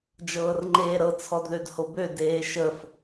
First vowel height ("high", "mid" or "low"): mid